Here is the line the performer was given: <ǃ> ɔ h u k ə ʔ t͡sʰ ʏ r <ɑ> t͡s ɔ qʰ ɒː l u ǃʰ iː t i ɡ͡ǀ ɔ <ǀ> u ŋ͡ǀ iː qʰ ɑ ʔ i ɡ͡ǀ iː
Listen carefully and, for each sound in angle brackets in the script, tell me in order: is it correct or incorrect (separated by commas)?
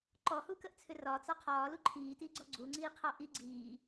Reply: correct, incorrect, incorrect